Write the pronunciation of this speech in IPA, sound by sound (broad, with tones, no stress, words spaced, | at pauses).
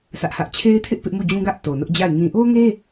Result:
sä˦ʔhä˦ʔ t͡ɕʰe˦ɪ̯tʰɪ˦ʔ pɪ˦ʔmu˦˨d͡ʑũ˦ɡä˦ʔ to˨nʊ˦ʔd͡ʑa˦˨ɪ̯ ŋĩ˨ʔo˦ŋe˦